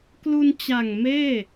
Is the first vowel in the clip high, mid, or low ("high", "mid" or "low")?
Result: high